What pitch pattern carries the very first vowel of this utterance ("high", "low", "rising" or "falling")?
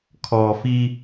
low